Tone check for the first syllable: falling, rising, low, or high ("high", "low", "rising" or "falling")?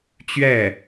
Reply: falling